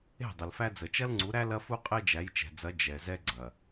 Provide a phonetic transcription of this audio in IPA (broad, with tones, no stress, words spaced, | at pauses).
e̤˦˨ dˤə˨lfæ˦ d͡zə˨t͡ʃɐ˦lŋ͡ǀu˨˦ɾæ˦ lɐ˦fu˦ qʼe˦d͡ʒæ˨˦jt͡ʃɛ̤˨d͡zɐ˨˦ d͡ʒɛ˨ zɛ˦ɡ͡ǀɐ˨